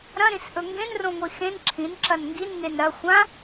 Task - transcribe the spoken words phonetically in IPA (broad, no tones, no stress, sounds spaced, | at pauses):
ɾ ɐ̃ ɾ ĩ s ʔ ɵ ŋ ɡ ẽ n r õ ŋʷ i x ẽ n ǁʰ ĩ n ǁ ɐ n ŋ ɡ i n ŋ e n ɾ ɐ xʷ ã